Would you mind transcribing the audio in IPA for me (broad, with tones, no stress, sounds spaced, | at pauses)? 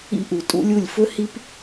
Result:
ḭ˦ ʔ u˨ tʼ ṵ˦ lʲ u˦˨ lʲ f ɵ˦ h i˦ p